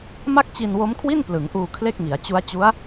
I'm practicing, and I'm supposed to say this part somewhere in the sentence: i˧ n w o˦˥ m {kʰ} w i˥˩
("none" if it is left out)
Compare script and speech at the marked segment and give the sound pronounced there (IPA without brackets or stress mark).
kʰ